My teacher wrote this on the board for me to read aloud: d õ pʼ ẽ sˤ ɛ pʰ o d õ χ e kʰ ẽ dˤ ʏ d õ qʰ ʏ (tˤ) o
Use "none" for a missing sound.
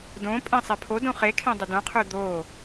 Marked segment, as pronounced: d̪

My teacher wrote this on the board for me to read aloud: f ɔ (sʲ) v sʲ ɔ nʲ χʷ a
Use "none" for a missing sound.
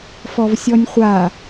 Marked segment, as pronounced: none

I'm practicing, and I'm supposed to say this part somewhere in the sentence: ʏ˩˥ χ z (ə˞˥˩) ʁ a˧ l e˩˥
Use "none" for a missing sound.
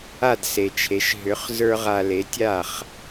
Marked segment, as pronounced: ə˞˥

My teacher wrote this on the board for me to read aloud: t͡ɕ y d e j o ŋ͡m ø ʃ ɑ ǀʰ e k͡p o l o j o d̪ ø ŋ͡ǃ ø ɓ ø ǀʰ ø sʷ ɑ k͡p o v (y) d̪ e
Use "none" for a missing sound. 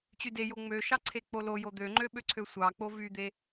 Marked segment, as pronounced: y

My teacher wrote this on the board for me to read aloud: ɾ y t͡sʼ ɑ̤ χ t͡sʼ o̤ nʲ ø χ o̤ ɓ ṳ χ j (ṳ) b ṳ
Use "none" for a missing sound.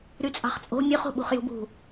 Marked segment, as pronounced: ṳ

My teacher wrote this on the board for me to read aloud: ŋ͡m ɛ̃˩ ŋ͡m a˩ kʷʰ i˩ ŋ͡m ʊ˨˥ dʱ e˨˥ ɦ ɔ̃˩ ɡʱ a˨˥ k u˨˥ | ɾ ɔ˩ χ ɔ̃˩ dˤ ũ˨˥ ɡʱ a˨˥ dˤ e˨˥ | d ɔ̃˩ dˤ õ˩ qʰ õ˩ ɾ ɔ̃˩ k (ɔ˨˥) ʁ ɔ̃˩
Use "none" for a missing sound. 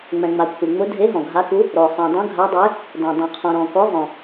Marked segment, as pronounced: ɔ˨˥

